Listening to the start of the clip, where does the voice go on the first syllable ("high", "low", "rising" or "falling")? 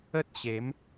high